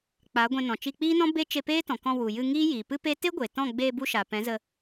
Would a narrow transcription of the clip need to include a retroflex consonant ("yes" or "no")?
no